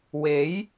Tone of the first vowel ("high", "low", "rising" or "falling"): rising